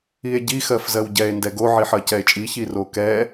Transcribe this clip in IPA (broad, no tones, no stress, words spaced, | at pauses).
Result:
ie̯ɟi xɜfzɜwɟɛe̯ ndɛɡo ʕiħɜcɛe̯t͡ʃʼi çirokɛ